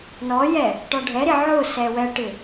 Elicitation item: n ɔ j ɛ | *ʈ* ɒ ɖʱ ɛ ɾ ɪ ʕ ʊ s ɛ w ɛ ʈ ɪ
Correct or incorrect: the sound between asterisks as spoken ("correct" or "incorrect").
correct